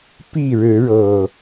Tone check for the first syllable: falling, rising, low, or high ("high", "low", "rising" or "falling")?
falling